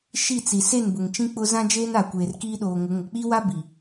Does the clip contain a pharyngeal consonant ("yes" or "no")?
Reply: no